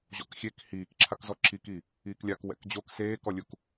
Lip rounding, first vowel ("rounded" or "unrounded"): rounded